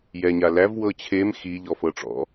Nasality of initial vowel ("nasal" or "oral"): oral